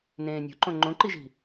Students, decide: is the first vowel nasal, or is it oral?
nasal